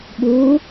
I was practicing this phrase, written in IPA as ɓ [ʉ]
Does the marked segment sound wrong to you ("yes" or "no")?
yes